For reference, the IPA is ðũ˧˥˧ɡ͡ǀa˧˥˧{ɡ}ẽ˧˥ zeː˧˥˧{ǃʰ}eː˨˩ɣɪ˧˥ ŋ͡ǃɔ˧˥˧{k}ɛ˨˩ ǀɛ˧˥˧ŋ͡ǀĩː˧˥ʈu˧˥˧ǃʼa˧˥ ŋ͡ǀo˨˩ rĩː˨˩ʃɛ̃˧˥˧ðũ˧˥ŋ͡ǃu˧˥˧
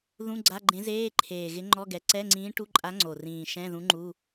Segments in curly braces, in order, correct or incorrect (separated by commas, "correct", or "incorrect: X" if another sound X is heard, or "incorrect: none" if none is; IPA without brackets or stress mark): incorrect: ɡ͡ǃ, correct, incorrect: ɡ